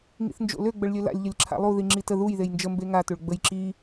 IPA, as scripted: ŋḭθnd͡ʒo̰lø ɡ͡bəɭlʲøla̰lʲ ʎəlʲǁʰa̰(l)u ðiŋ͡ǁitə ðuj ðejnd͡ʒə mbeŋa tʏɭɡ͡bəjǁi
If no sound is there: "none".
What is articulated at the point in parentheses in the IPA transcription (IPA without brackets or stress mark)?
lˠ